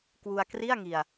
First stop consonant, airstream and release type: plain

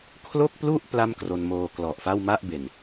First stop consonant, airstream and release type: aspirated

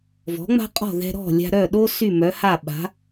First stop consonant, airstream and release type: ejective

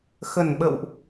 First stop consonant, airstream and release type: implosive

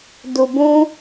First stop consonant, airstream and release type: plain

